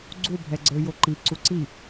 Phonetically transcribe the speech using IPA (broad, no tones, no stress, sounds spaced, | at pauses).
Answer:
ɡ͡ǀ u bʱ ɛ ɡ͡ǀ ə˞ j o ǃ i ǀ u ǀ i